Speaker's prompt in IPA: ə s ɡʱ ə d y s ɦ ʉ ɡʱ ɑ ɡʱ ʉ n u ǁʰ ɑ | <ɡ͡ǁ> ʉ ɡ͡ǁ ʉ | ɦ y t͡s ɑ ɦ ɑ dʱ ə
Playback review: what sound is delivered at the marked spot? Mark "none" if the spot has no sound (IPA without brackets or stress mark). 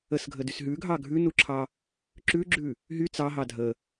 ǁ